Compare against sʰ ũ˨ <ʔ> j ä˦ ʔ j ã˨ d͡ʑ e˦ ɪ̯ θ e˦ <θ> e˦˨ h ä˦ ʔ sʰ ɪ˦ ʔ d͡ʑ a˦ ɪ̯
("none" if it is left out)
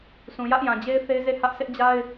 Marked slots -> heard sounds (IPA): none, z

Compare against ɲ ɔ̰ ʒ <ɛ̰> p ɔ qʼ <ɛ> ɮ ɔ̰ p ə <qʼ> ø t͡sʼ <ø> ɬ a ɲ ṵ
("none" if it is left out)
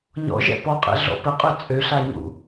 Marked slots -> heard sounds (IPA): ɛ̰, ɛ̰, qʼ, ø

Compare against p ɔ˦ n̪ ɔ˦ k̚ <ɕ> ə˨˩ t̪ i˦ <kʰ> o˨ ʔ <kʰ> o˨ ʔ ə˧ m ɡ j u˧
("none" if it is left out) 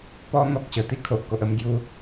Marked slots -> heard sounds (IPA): ɕ, kʰ, k

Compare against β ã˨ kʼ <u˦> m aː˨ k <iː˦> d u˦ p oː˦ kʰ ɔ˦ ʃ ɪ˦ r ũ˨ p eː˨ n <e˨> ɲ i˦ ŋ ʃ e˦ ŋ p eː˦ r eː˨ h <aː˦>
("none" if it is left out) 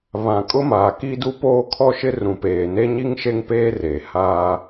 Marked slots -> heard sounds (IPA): ʊ˦, i˦, e˦, aː˦

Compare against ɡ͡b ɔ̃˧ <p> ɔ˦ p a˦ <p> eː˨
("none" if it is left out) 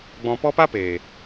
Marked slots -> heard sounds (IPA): p, p

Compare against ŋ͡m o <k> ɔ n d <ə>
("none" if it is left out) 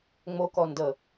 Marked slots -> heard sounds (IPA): k, ə

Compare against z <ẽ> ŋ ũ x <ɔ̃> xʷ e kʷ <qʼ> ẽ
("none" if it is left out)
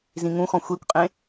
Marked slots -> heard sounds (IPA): ĩ, ɔ̃, qʼ

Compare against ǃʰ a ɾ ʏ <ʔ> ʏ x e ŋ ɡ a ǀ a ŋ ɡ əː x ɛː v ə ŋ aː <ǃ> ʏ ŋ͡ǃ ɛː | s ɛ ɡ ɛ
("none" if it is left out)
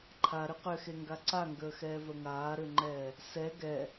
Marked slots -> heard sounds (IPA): q, ɾ

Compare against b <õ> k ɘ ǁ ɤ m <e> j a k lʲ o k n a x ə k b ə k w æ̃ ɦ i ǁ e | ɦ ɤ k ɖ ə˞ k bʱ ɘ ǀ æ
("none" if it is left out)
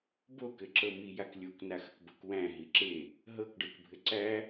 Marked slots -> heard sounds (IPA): o, i

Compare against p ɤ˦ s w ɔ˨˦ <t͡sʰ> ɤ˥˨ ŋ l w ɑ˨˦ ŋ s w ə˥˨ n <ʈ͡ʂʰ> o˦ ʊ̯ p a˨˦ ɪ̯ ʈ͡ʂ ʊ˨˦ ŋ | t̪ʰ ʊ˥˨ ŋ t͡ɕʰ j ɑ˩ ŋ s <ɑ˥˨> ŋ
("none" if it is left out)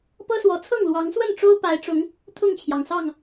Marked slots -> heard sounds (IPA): t͡sʰ, ʈ͡ʂ, ɑ˥˨

